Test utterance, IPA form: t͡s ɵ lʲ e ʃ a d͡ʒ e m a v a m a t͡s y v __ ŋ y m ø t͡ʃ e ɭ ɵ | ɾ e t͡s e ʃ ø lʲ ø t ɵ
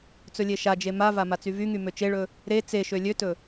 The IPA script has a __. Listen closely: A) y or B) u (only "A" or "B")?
A